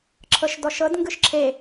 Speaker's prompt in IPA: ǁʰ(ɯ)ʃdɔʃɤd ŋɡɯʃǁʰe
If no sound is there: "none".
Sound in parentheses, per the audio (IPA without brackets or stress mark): ɤ